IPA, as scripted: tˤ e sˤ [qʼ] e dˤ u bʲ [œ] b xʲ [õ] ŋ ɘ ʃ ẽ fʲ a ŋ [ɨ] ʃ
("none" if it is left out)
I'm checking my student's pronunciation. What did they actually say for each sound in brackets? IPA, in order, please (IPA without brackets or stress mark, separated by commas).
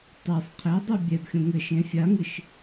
qʰ, ɛ, õ, ɨ